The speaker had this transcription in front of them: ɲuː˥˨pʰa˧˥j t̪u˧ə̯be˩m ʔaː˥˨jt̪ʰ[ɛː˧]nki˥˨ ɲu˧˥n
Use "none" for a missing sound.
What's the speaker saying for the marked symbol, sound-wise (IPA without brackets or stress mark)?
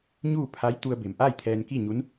ɛː˧